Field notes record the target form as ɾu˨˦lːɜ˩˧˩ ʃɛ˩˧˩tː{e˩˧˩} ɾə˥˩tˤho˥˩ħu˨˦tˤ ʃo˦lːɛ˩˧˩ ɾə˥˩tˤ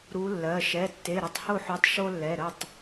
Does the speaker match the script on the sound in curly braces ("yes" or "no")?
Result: yes